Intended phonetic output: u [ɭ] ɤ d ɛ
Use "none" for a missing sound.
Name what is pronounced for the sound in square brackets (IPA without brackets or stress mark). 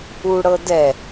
ɽ